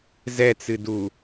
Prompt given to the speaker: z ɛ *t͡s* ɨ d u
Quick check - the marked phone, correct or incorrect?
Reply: correct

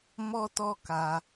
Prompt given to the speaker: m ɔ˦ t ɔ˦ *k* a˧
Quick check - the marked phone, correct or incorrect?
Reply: correct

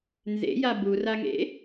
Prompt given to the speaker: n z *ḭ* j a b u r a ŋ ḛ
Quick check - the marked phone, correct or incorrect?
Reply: incorrect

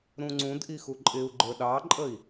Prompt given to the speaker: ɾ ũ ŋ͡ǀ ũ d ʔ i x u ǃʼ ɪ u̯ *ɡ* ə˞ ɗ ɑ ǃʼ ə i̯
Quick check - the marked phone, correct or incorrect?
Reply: incorrect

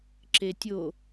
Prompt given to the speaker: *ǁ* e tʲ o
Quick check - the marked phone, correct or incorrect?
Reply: correct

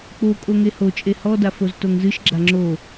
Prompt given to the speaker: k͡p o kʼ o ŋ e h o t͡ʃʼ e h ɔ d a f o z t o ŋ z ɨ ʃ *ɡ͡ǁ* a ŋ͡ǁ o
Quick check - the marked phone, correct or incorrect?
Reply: correct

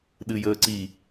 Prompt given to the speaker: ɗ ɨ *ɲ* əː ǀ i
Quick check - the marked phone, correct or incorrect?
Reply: incorrect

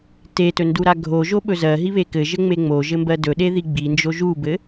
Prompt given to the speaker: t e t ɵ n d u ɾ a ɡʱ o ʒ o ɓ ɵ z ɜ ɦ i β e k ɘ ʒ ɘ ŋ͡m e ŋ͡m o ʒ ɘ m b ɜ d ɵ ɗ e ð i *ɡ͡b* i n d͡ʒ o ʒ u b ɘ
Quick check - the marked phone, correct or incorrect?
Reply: correct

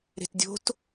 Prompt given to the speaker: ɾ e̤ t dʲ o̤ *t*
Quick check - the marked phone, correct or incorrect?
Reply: correct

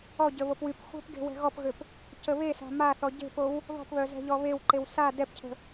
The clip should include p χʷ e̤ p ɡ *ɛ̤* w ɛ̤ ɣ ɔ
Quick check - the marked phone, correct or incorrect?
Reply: incorrect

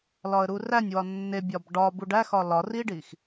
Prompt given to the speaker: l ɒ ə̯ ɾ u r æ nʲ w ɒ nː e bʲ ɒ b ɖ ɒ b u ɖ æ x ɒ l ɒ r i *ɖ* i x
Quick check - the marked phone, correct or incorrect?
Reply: correct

